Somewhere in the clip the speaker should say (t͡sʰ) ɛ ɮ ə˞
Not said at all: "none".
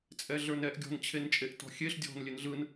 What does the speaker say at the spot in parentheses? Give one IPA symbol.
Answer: t͡sʼ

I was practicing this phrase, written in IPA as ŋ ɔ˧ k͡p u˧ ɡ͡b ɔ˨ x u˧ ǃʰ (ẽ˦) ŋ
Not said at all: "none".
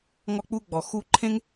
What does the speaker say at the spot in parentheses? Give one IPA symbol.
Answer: ẽ˦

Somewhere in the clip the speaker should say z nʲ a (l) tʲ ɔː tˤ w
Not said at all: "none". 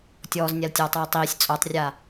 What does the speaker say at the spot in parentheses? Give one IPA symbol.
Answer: l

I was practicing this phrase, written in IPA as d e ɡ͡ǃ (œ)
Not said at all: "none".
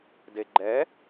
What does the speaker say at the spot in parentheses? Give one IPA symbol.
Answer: ɛ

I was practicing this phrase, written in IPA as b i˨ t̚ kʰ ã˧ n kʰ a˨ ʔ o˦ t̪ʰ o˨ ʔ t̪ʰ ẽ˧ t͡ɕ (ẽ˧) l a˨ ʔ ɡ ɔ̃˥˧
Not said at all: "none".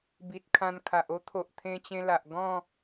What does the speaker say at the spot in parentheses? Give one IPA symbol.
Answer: ẽ˧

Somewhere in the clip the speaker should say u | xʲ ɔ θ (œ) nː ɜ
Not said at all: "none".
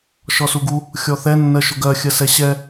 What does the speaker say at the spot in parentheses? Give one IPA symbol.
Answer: ɛ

